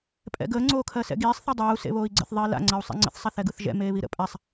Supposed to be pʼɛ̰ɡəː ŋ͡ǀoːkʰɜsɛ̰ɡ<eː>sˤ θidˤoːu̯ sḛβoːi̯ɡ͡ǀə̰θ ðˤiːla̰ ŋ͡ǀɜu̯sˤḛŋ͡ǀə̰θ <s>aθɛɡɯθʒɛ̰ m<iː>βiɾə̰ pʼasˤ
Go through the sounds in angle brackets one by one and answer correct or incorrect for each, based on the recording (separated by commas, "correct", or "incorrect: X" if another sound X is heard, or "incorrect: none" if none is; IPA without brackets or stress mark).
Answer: incorrect: iː, incorrect: sˤ, incorrect: eː